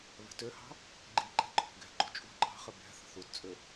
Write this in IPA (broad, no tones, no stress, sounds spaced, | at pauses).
β ɛ̤ t ø h ɑ̤ | ɡ͡ǃ i ǃ ɛ̤ ǃʰ o̤ ɡ ɛ̤ ɡ͡ǃ o̤ t͡ʃʼ ṳ ǃ ɑ̤ χ ə b ɛ̤ θ ə̤ θ u t t͡sʼ ø